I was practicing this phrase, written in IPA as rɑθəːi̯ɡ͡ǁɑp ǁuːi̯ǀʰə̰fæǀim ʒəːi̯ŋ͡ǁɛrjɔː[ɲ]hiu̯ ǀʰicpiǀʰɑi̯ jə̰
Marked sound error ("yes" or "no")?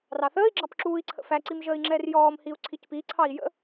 yes